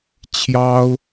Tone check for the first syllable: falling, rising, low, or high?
high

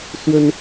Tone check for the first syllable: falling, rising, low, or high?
high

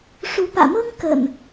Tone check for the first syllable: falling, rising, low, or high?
rising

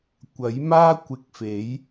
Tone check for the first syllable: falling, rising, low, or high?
rising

